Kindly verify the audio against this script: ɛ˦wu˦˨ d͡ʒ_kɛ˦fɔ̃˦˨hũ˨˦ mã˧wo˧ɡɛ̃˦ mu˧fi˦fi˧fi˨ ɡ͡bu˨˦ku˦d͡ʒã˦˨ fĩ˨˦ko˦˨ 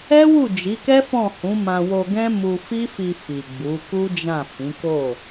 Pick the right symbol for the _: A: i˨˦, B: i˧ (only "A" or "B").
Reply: A